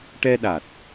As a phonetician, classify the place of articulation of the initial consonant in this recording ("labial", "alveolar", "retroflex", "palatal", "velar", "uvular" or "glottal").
retroflex